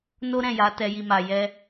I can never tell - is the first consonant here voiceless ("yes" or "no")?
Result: no